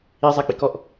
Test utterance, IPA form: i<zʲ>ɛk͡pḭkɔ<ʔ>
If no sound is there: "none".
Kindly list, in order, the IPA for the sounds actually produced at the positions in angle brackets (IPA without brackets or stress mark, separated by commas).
zˤ, ʔ